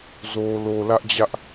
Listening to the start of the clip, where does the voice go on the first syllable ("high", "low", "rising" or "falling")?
low